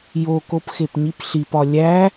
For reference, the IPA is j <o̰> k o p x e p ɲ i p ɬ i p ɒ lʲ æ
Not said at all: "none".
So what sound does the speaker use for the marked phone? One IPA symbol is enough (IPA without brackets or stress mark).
o